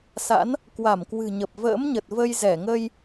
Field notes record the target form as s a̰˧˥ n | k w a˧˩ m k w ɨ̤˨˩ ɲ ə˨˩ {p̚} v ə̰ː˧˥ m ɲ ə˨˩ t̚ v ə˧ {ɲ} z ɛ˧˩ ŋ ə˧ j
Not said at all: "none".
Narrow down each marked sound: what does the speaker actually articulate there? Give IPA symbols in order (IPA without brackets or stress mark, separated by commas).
p̚, j